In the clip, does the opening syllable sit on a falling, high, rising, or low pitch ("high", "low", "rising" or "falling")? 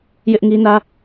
high